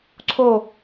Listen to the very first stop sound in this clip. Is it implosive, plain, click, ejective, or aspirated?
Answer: click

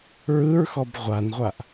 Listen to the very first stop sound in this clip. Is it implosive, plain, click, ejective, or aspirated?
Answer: plain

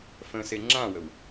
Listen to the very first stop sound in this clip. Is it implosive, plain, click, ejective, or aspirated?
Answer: click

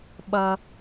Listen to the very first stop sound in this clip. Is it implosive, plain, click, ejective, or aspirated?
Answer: implosive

